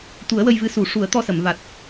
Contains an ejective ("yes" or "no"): no